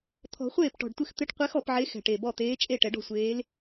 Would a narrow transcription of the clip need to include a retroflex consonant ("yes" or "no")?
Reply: yes